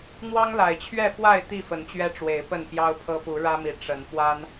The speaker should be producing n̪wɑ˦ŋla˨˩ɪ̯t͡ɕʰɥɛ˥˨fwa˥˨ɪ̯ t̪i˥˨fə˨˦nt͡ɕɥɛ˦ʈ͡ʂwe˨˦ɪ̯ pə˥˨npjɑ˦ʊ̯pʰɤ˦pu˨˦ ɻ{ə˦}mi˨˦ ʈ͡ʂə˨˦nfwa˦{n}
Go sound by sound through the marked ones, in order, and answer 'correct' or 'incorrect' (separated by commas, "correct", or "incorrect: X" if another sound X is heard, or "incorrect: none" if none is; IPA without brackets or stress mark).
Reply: incorrect: ä˦, correct